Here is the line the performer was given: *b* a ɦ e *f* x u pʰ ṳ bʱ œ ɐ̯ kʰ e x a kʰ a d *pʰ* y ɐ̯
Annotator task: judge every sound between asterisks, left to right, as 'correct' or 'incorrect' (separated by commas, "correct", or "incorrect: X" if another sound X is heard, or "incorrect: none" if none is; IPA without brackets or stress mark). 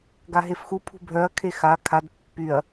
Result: incorrect: ɡ, correct, incorrect: pː